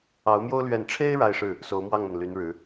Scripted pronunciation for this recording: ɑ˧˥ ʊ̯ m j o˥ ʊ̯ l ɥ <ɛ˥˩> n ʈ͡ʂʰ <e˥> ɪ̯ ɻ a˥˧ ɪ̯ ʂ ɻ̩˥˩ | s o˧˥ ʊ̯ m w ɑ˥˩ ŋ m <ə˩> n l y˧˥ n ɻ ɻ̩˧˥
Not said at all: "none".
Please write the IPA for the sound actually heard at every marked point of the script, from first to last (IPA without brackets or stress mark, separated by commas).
ɛ˥˩, e˥, ə˩